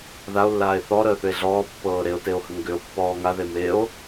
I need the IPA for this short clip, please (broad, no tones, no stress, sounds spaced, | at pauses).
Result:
ð a o̯ lː aː e̯ θ ɔ ɾ əː θ ʏ e̯ ɮ ɔː pː ɤː ɾ e o̯ t e o̯ h ə ŋ ɡ ʏ o̯ pː ɔː ŋ a ð e m e o̯